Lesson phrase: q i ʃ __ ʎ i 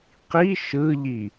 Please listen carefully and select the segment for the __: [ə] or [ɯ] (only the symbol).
ɯ